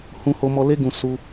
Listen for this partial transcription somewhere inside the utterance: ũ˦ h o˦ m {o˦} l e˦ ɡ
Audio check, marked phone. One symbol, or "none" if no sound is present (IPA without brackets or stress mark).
ɔ˦